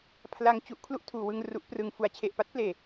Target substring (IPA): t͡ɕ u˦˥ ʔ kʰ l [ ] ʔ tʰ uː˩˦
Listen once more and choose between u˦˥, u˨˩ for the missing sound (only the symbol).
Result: u˦˥